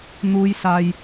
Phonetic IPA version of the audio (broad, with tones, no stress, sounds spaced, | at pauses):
n̪ uː˨˧ j s aː˨ j